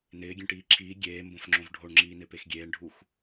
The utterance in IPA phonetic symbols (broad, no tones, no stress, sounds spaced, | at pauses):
n ɪː ɡʲ ẽ ʈ iː ǁʰ iː ɡʲ eː m b õ f ŋ͡ǁ õ v ɖʱ o ɳ ŋ͡ǁ iː n ɪ p e x ɡʲ eː ɳ ɖʱ u x